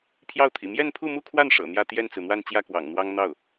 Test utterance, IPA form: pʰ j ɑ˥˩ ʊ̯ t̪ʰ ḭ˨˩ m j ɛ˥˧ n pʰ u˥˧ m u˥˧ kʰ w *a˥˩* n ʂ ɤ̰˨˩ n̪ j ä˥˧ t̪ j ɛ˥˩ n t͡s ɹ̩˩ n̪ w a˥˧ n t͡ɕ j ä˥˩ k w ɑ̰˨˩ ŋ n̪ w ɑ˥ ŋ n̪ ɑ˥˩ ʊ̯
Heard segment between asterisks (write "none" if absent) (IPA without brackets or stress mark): a˥˩